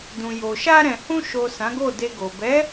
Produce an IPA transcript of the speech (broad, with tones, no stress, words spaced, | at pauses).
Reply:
dũ˨jo˨ ʃa˧ɾɛ̃˨hũ˧ ʃo˨ sã˨˦ɡo˦˨de˧ɡo˨ bɛ˨˦